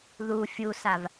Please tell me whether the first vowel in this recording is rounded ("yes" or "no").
yes